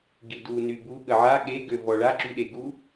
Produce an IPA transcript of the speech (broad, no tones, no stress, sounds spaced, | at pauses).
ɡ i d u n y b u ɠ ə ʕ a ɠ e ɡ ø v ɔ ɭ a ǁ y ɗ e ɡ u